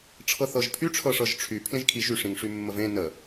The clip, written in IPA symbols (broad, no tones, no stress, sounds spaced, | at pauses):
ʈ͡ʂʰ ɤ θ ɤ ʒ pʰ y ʈ͡ʂʰ ɤ ʂ ɤ ʒ ʈ͡ʂʰ y pʰ l ẽ ʒ kʰ i ʒ y ʂ ĩ ŋ ʂ y mː ə v ẽ n ə